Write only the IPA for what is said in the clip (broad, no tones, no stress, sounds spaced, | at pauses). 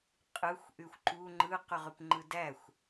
qʼ ɯ xʷ ʔ y xʷ ǃ u ŋ͡ǃ ɯ q y ʁ y p ŋ͡ǃ ɯ d æ xʷ